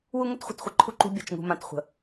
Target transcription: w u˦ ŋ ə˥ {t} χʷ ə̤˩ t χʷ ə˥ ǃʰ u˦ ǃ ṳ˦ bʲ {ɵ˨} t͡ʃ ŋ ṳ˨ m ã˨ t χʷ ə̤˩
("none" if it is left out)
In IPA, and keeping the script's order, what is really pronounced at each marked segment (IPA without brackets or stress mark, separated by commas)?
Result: t, ə˨